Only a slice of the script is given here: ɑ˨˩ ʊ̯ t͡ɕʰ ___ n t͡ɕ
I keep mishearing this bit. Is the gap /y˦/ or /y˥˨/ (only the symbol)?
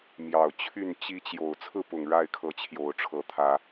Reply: y˥˨